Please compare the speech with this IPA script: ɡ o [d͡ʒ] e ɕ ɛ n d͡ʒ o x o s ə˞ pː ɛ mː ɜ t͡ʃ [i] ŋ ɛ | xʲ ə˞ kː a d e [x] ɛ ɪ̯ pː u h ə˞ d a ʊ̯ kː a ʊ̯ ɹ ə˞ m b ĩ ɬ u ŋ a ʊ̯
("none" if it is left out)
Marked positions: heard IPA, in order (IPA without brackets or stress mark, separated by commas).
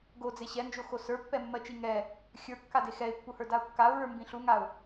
d͡z, i, x